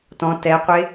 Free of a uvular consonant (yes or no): no